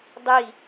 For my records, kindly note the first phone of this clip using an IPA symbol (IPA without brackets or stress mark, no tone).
dˤ